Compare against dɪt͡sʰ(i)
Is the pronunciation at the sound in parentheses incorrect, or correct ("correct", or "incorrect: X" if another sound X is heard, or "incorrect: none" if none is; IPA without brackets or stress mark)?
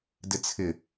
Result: incorrect: ɪ